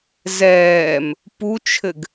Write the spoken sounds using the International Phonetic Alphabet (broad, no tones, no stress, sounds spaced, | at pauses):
z ɛː m | p u t͡ʃʰ ɘ ɡ